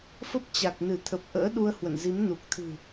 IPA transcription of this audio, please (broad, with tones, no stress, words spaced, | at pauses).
fə˦˥p̚t͡ɕa˨˩k̚nɨ˧˩t̪ʰə˨˩p̚ ʔə̰ː˧˥ɗu˧ə̯hwə̰˧˨nzi˨˦m nu˨˩k̚t̪ʰɨ̤˨˩